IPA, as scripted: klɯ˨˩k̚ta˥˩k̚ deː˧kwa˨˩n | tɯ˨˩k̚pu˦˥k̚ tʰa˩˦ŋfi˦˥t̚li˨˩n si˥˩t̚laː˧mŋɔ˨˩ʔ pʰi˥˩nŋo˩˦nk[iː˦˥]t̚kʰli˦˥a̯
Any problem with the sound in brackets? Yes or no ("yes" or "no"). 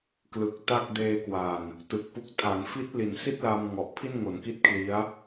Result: yes